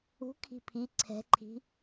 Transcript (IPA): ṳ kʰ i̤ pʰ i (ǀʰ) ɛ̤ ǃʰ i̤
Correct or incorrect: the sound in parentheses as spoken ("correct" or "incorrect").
correct